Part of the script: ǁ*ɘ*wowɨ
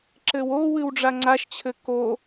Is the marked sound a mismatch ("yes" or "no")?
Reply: no